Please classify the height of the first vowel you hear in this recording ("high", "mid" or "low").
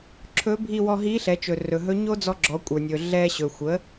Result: mid